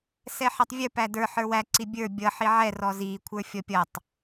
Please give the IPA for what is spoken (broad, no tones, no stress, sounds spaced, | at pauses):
s ɛ ħ ɛ tˤ vʲ ə˞ p æ d ə˞ ħ ə˞ w æ ǀ i bʲ ə˞ bʲ ʌ ħ i ʕ ɛ r ɔ z i kʷʰ ə˞ fʲ ɔ pʲ ʌ tˤ